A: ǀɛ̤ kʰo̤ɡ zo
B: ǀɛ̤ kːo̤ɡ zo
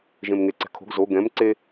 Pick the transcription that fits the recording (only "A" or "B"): A